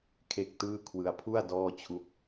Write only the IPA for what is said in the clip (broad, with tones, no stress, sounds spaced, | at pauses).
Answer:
kʰ e˥˩ k̚ t ɯː˥˩ kʰ w ɯ˧ a̯ pʰ u˥˩ a̯ d ɔː˥˩ t͡ɕʰ u˦˥ k̚